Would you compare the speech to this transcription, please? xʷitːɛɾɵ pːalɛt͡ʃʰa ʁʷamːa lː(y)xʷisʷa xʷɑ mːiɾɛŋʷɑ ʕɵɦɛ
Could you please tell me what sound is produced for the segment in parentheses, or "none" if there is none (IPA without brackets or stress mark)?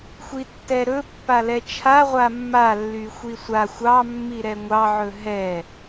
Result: y